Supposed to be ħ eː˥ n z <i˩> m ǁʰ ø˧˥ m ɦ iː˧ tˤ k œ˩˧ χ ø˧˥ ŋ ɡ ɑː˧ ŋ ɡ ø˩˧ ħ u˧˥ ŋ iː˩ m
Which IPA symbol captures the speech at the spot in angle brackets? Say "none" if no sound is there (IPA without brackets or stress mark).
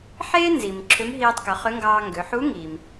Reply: i˩